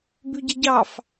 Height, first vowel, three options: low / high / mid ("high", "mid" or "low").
high